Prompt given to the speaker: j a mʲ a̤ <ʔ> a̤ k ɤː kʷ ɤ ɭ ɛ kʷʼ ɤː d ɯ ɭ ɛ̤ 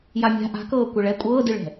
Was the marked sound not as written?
no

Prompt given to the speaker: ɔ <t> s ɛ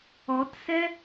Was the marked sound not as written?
no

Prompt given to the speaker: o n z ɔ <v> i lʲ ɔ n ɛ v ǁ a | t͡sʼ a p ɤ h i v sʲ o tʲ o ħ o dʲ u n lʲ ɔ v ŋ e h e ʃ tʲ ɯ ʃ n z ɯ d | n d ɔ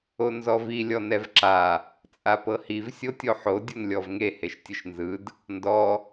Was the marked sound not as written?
no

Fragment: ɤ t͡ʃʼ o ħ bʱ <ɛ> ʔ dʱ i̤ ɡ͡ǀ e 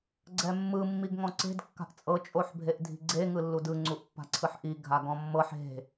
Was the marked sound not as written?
yes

